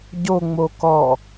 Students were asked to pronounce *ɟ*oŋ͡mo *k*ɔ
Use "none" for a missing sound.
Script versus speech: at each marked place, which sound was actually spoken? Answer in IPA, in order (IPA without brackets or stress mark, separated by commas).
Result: ɟ, k